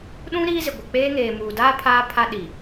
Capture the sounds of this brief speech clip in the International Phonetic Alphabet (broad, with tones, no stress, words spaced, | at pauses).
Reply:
ɗũ˦ ɾiː˦zɪ˨ ɡʷɪ˨k͡peː˦ ŋeː˨muː˨daː˦ pʰaː˦pʰa˦ ɗi˨